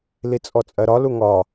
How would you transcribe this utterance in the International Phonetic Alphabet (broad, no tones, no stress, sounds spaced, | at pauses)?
l i t͡sʼ ɔ t͡sʼ ɜ ɾ ɒ l u ŋ ɒ